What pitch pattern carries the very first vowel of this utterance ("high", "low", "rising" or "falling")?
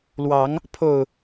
rising